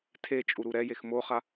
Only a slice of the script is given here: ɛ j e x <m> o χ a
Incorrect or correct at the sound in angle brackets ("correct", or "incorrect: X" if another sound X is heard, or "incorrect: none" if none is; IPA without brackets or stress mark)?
correct